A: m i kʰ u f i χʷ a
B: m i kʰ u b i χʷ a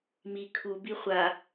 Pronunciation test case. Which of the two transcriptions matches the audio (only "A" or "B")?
B